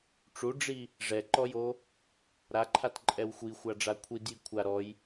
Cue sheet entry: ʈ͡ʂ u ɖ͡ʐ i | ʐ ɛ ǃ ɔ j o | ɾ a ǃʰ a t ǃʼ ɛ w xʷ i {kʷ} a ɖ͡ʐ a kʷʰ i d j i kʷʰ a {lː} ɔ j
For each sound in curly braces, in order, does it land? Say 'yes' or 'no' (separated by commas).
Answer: no, no